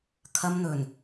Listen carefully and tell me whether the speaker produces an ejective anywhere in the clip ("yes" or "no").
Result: no